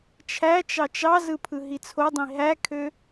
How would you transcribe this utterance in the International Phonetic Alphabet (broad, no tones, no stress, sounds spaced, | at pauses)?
t͡ʃʰ æ t͡ʃ ɑ t͡ʃ ɑ z ɯ pʰ ɯ ɦ i t͡sʰ o dˤ ĩ ɦ æ kʰ ø